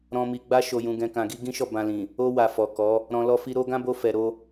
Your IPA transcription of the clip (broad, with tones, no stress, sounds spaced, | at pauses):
ɾ ɔ̃˨ m i˨ ɡ͡b a˧ ʃ o˨ j ũ˨ ɡ ɛ̃˨ k ã˨ ɡ i˧ ɡ ĩ˦ ʃ ɔ˦˨ b ã˧ l ĩ˨ | o˧ w a˨ f ɔ˨ k ɔ˨˦ | ɾ ɔ̃˧ l ɔ˦ f i˦ ɾ o˦ ɡ ã˦ b o˧ f ɛ˨ ɾ o˧